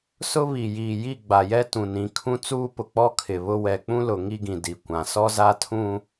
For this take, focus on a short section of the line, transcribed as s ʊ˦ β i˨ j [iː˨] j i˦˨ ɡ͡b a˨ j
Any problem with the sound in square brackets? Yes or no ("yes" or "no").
no